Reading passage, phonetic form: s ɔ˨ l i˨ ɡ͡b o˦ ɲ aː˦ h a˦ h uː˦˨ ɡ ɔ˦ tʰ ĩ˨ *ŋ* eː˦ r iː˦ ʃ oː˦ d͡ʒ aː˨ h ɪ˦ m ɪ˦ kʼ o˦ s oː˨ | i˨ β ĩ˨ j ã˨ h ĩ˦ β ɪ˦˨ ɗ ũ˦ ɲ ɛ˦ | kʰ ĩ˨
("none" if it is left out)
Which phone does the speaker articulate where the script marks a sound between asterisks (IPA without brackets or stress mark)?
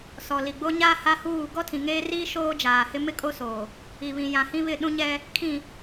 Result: ŋ